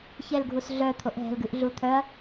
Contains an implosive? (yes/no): no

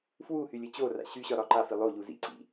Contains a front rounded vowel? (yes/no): yes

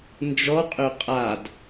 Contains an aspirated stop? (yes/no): no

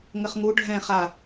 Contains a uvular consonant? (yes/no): yes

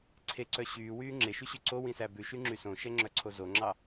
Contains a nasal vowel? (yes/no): yes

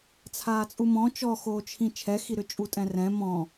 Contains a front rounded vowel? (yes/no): yes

